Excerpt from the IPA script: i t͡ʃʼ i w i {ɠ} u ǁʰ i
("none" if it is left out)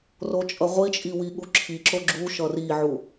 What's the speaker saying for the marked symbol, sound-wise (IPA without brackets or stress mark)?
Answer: ɠ